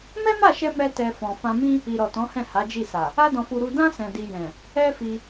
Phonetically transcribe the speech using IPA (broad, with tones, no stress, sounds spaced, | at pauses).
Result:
m ɛ˦ m a˦˨ ʃ ɛ˧ m ɛ˦ t ɛ˧ f ɔ̃˨ f ã˧ m ĩ˦ | i˨ ɾ ɔ˨ t ɔ̃˨˦ h ɛ̃˦˨ h a˨˦ d͡ʒ i˦˨ s a˨ | a˦ d ɔ̃˧ f u˧ ɾ u˧ d ã˦ s ɛ̃˧ d i˧ j ɛ̃˨ | ɛ˦ f i˧